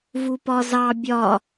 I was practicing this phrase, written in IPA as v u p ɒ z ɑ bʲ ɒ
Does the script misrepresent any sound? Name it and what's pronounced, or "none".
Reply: none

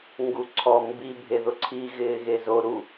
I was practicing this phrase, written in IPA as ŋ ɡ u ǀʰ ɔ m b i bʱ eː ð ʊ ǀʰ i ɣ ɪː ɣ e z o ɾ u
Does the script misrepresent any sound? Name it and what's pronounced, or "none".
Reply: eː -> e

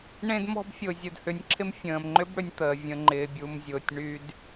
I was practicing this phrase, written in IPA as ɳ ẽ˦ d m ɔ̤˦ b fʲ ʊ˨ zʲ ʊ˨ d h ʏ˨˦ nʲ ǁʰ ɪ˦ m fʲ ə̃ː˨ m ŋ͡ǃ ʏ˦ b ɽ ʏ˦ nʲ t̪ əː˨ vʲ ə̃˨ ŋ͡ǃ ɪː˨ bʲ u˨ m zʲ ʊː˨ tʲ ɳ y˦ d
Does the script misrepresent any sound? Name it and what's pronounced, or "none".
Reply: none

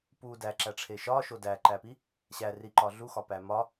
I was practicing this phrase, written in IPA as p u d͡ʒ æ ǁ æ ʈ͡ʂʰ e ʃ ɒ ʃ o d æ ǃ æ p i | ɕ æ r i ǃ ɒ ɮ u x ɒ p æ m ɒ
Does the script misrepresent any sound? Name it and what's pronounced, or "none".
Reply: d͡ʒ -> d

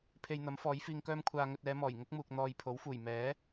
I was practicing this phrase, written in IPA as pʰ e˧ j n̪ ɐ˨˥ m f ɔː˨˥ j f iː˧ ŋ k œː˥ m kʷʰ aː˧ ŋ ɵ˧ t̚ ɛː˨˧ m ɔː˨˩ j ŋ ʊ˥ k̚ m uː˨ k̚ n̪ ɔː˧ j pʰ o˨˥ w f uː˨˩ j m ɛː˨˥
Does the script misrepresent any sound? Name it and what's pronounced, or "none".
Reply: none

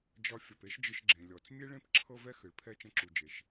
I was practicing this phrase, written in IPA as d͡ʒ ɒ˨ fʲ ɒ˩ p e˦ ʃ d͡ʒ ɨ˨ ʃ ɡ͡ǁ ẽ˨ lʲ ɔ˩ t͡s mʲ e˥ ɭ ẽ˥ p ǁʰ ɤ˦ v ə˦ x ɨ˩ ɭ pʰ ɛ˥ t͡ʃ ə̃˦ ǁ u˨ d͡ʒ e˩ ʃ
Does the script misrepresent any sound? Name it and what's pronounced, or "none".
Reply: ə˦ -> ɛ˦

